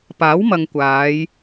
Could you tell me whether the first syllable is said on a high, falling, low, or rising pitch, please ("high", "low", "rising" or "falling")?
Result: rising